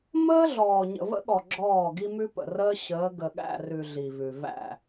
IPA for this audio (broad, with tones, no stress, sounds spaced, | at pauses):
m əː˦ ɮ ɔː˨ ɲ ə̰˨ v ə̰˦ ɠ ɔ˨ ɡ͡ǁ ɔː˦˨ ɡ i˦ m ʉ˦ p ə̰˨ r əː˦ ɕ əː˨˦ ɡ ə˨ ɠ æ̰˦˨ r ʉ˨ ɮ i˨ v ʉ˨ v æ̰˦˨